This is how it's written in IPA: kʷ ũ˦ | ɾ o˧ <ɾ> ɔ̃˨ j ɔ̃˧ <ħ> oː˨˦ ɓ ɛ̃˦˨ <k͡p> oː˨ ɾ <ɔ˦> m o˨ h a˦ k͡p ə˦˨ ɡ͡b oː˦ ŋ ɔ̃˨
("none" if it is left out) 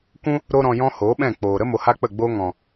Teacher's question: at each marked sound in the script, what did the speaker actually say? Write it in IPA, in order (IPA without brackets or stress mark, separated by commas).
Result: ɾ, h, k͡p, ə˦